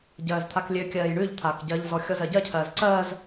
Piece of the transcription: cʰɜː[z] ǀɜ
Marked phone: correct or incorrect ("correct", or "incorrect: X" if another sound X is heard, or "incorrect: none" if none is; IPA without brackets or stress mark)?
correct